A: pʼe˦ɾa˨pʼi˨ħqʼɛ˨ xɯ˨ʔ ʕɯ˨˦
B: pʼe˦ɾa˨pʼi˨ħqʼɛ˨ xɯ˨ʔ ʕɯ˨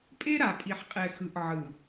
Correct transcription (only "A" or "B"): B